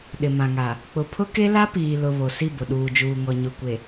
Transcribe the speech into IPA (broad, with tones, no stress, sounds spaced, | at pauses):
ɗ ɪ˨ m ã˨ ŋ a˨ | k͡p ʊ˨ pʰ ʊ˦ k e˦ l a˦ p iː˨ l ʊ˨ β o˨ s i˦˨ b ʊ˨ ɗ uː˨ d͡ʒ uː˨ ŋ ɔ˨ ɲ ʊ˨ kʷ e˨